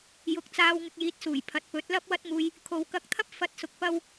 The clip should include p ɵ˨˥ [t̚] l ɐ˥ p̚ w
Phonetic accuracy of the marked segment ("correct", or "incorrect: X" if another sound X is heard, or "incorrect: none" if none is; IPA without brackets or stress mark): correct